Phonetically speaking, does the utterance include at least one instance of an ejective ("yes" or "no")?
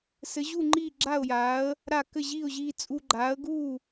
yes